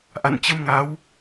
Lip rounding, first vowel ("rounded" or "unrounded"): unrounded